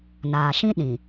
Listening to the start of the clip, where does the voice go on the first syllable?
low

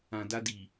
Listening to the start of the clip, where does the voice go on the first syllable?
low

